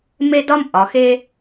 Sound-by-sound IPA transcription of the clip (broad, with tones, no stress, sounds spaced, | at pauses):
m e˦ d ɒ˦ m ʔ ɒ˩˧ x e˦